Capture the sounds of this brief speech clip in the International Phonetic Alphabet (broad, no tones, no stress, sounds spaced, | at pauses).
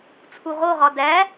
t͡sʰ u ʁ o ʁ ɒ d æ